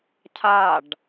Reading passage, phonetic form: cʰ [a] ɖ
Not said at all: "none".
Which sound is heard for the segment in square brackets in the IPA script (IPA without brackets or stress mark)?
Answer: a